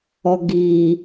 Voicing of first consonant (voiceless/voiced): voiced